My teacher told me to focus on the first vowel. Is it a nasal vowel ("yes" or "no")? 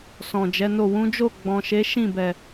yes